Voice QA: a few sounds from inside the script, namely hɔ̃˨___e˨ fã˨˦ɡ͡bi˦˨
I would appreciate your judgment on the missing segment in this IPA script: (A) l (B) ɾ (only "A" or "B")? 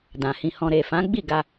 B